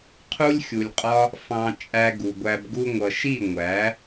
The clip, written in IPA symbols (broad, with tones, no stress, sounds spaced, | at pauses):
qʰ u˦ lʲ xʲ u˨ lʲ qʼ ɒ˦ | f ɑ̃˧ t͡ʃʼ æ˧ ɡ u˨ ɡʷ æ˧ b ɡ u˧ ŋʷ ʌ˨ ʃ i˦˨ ŋʷ æ˨˦